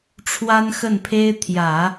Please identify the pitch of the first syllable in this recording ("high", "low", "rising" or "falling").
high